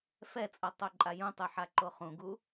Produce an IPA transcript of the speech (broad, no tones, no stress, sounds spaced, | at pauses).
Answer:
f ɛ t͡sʼ ʌ tˤ o ǃʼ a j ũ tˤ ɯ ħ a ǃ o χ ũ ɡ u